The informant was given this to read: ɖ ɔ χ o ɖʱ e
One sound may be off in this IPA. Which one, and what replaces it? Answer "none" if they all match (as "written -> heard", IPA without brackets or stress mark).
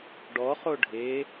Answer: none